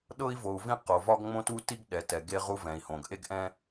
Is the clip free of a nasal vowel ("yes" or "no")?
no